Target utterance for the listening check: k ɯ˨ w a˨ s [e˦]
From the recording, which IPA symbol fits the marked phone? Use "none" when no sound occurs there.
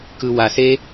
e˦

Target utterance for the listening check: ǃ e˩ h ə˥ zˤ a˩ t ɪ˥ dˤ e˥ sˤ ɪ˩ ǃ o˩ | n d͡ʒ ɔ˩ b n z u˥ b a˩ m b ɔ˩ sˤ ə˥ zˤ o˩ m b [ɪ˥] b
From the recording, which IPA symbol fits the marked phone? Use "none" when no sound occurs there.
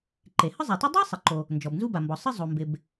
ɪ˩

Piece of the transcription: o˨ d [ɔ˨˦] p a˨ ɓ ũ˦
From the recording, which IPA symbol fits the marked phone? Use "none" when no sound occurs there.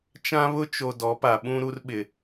ɔ˨˦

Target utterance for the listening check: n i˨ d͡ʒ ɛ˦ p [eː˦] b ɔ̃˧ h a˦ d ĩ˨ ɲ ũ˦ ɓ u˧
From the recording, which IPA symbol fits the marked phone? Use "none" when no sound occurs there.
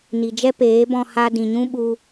eː˨˦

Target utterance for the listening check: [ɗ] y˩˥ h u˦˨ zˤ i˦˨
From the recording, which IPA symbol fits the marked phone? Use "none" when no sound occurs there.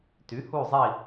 t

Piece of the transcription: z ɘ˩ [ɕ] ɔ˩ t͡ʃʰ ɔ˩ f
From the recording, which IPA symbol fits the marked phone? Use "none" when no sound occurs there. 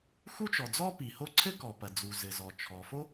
z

